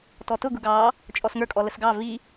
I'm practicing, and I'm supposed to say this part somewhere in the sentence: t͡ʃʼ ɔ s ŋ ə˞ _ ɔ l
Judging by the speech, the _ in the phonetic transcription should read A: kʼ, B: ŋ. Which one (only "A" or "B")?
A